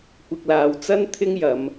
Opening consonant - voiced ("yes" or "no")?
no